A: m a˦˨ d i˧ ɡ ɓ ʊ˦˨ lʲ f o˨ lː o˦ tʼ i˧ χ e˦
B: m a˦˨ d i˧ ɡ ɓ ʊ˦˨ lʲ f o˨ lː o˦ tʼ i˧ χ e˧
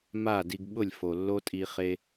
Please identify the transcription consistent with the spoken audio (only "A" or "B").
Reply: B